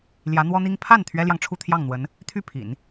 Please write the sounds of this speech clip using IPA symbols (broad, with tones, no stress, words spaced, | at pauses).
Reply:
ljä˧˥n̪wɔ˥n̪i˥ŋ pʰa˥˩n t̪ʰɥɛ˥ljɑ˨ŋʈ͡ʂʰu˥˧ t̪ʰjɑ˥˩ŋn̪wə˧˥n | t̪ʰy˥˩pʰḭ˨˩˦n